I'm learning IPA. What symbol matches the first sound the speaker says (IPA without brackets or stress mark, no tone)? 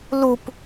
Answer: l